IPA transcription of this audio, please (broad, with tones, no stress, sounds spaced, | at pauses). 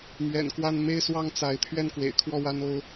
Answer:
m ɥ ɛ̰˨˩ n k w a˥˧ n m e˥˧ ɪ̯ s w ɑ˥˩ ŋ t͡s a˧˥ ɪ̯ t̪ʰ ɥ ɛ˥˩ n k w ḛ˨˩ ɪ̯ kʰ w ɔ˥˩ w a˥ n o˥ ʊ̯